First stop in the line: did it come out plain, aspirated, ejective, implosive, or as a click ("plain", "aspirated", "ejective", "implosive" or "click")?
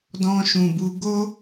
plain